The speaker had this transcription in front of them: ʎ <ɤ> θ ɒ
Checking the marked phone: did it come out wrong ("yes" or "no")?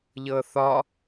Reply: no